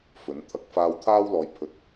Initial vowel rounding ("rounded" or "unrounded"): rounded